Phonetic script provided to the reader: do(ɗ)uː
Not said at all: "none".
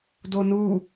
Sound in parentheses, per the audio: n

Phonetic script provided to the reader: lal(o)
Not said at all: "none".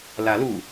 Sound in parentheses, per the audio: u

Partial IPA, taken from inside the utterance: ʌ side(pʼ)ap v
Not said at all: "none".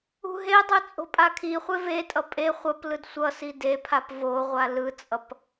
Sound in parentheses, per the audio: pʰ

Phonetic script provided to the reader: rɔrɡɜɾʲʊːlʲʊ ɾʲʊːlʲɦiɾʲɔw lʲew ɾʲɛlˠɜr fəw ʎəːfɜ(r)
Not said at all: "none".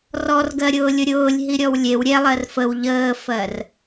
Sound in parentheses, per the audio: r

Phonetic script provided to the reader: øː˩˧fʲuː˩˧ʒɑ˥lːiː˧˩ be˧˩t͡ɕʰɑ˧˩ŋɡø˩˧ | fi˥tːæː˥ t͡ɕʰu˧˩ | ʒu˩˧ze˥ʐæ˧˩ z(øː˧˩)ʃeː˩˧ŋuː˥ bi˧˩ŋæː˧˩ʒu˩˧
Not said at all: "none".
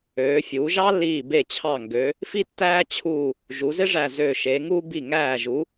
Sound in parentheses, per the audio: øː˧˩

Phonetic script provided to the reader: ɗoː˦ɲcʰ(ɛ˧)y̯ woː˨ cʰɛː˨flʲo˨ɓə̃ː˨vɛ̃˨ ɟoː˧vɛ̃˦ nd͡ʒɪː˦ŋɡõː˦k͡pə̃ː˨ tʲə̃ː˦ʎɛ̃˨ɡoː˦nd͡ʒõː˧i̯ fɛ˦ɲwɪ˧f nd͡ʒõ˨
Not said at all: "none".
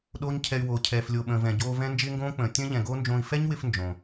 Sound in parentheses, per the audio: ɛ˧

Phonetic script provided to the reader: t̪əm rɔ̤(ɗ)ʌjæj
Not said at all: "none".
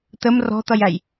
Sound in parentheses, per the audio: t̪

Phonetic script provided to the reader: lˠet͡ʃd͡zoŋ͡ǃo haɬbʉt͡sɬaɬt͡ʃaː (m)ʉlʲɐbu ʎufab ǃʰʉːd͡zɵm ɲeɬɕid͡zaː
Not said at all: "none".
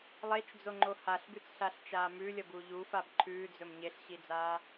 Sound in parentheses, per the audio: m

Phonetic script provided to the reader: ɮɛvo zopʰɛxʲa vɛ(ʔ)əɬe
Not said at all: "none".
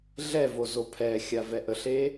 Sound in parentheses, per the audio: ʔ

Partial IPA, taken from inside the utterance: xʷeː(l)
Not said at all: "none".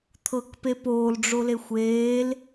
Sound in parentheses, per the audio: l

